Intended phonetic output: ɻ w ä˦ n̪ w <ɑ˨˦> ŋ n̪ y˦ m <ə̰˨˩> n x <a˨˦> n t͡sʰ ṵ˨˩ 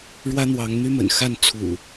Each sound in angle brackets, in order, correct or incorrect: correct, correct, incorrect

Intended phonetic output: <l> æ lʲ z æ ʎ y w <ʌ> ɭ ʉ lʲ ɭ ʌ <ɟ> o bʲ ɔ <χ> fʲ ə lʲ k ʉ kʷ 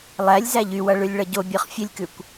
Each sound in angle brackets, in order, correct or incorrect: incorrect, correct, correct, correct

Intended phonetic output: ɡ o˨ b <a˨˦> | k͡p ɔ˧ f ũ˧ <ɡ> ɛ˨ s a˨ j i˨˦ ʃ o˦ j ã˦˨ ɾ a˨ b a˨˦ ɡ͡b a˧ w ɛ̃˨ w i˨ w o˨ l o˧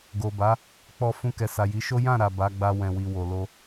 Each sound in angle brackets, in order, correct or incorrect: correct, incorrect

